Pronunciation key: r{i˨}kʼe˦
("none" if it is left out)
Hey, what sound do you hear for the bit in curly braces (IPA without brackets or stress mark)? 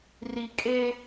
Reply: i˨